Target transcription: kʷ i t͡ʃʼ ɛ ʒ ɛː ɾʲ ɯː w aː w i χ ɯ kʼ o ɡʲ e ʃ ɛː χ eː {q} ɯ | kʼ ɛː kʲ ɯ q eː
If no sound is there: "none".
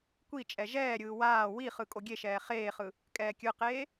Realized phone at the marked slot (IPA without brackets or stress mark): χ